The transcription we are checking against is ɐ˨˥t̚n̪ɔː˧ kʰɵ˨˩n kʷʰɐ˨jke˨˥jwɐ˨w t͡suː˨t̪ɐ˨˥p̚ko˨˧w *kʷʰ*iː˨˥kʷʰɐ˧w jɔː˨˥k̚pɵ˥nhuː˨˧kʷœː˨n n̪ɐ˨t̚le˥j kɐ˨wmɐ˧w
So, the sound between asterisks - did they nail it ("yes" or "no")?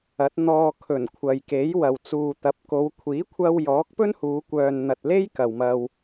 yes